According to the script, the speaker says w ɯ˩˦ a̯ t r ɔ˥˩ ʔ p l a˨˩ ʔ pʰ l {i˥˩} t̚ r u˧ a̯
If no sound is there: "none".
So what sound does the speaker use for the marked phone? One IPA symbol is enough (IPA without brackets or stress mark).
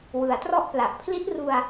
i˦˥